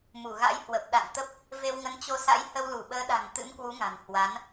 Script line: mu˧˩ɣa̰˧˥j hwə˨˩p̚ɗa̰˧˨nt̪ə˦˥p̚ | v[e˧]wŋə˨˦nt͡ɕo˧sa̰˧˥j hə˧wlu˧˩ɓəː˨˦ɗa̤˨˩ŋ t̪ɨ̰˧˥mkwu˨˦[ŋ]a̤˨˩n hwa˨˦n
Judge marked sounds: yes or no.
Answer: yes, yes

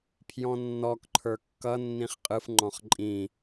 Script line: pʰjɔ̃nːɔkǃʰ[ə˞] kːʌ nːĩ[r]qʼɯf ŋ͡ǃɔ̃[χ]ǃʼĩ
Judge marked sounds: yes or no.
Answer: yes, no, yes

